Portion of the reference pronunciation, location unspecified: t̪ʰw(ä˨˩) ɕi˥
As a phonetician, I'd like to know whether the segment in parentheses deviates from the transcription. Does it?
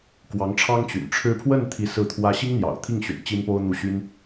yes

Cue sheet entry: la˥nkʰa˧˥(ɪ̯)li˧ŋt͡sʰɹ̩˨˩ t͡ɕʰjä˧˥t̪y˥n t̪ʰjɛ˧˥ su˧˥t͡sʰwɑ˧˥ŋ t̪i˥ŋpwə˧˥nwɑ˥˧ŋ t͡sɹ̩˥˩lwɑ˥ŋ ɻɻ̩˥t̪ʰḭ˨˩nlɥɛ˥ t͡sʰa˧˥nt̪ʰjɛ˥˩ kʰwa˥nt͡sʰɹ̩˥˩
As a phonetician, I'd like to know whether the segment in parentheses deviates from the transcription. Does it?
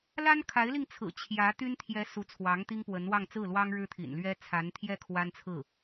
no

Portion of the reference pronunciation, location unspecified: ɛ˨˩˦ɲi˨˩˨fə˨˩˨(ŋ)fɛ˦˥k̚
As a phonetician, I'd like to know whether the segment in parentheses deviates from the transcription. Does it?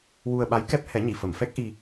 yes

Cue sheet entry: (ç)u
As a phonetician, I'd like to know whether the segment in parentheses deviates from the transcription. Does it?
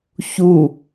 no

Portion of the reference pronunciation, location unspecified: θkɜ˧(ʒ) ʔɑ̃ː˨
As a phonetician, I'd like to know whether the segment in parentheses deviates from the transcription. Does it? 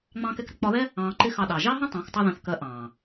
yes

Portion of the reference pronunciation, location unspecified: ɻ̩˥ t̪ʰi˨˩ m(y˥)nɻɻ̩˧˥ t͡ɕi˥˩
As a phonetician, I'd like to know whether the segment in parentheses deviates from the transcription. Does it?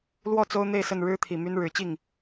no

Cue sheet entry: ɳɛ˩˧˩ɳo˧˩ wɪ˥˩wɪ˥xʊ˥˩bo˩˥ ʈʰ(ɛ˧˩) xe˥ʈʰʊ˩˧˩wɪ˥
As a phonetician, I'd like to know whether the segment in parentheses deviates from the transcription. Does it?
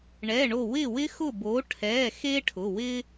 yes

